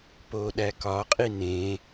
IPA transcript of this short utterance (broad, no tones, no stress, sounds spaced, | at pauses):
p o ɗ æ k ɒ qʼ i n ẽ